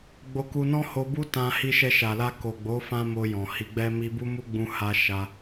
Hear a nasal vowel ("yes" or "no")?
yes